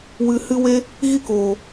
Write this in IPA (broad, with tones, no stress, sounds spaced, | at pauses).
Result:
w ɨ˨ h ɨ˦ w e˦ | ɣ i˦ k oː˨